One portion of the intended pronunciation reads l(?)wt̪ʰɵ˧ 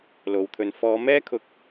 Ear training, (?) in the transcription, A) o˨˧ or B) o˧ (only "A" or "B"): A